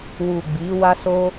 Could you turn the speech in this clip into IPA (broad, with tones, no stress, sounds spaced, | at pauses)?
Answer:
w u˨ ɡ͡b i˨˦ w a˦ s o˦